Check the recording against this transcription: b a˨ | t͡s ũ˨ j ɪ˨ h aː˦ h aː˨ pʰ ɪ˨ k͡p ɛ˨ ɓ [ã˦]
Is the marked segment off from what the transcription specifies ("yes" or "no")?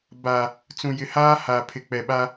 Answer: yes